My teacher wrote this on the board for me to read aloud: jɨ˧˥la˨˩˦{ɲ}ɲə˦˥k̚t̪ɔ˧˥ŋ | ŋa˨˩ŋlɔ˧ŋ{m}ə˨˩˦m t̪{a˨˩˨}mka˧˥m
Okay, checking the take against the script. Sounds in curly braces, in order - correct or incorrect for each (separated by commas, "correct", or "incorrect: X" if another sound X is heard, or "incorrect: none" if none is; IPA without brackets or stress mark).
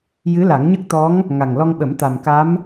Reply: incorrect: ŋ, incorrect: ɓ, incorrect: a˨˩